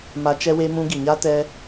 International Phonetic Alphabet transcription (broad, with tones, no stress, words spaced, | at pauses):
ma˧ t͡ʃɛ˧we˧ mũ˧ɡi˨ɲa˦ tɛ˦